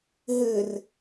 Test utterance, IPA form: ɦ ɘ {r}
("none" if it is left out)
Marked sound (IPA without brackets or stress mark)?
r